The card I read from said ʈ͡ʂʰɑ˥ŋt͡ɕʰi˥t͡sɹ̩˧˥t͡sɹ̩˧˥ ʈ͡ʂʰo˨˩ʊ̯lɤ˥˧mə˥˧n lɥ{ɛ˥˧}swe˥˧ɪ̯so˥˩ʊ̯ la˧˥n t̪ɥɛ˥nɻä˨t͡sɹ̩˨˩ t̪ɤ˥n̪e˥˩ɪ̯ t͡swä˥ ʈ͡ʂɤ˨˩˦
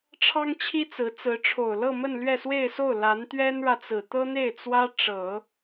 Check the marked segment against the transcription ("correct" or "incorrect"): correct